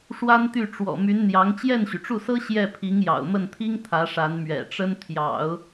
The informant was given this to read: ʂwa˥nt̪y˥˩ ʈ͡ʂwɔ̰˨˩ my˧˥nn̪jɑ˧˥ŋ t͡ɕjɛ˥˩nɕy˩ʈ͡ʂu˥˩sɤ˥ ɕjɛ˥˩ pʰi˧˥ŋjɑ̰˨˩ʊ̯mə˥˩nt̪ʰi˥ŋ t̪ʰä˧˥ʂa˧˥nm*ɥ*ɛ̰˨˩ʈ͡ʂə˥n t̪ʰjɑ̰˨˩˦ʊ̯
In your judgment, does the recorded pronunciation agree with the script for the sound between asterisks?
yes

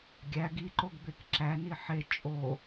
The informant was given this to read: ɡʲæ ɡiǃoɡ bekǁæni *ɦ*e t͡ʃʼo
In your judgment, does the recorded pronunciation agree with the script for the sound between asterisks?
no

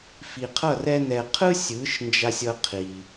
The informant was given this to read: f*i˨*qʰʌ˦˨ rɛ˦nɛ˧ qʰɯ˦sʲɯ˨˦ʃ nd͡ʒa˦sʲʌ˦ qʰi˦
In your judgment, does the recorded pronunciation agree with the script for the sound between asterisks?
yes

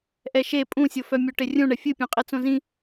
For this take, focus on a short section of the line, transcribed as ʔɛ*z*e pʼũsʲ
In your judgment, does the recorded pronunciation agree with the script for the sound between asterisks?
no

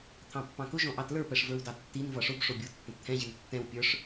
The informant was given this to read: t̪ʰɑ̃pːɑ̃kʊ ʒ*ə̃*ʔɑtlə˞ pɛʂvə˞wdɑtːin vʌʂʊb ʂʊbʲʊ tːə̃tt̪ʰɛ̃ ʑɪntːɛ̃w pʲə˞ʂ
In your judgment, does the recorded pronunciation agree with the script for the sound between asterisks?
no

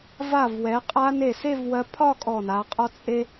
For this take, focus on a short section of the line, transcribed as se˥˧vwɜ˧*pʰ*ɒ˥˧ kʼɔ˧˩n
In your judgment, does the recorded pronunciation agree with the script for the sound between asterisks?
yes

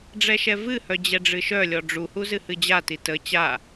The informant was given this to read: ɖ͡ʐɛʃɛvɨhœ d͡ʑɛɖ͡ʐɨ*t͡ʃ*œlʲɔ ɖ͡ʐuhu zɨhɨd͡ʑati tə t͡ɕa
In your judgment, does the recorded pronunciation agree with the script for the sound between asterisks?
no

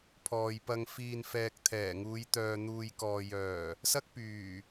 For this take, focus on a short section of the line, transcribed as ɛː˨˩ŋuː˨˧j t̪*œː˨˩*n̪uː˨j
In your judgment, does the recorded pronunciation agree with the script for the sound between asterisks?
no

